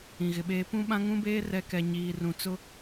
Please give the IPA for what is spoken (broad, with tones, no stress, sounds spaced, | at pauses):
ĩ˨ ɣ ɪ˨ ɓ eː˦ p ũ˦ ɓ ã˦ ŋ ũ˦ b eː˦ r ɛ˨˦ k ɛ˨ ɲ iː˨ r ũ˨ t͡s ʊ˦